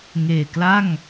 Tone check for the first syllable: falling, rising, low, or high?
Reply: low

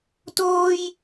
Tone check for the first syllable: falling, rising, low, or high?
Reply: high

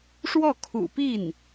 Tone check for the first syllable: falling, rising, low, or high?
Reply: falling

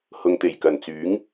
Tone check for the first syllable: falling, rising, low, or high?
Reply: low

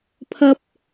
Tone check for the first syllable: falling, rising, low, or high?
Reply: high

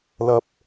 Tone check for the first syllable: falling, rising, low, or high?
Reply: low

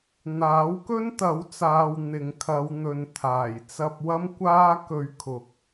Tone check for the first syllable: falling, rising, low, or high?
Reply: rising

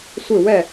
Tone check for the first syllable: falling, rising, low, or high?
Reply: falling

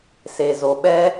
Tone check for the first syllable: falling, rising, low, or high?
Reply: low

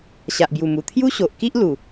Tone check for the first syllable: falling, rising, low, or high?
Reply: low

